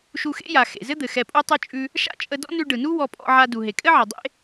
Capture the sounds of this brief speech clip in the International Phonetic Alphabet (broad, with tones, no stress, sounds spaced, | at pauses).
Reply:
ʃ u˧ x ḛ˥ j a˩ x ḛ˩ z ɘ˥ d̪ ɘ˩ x ɛ˧ pʼ u˥ tˤ ʉ˥ t͡ʃʼ ʉ˧ | ʃ a̰˥ t͡ʃʼ ə˧ d ɔ̰˥ n ʉ˧ ɖ ɯ˩ n u˥ w ɔ˧ pʼ ɔ̰˧ ʕ a˧ d u˩ ɦ e˩ kʼ ɘ˥ ʕ ɘ˩ dˤ ḛ˥